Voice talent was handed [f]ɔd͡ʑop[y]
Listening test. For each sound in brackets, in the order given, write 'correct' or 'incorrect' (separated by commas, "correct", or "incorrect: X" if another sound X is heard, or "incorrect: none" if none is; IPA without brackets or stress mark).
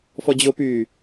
correct, incorrect: yː